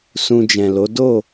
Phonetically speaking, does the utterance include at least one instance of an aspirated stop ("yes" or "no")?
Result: no